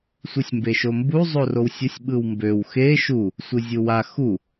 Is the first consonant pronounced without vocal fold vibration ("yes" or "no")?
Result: yes